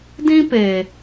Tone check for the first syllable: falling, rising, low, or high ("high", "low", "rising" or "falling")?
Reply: high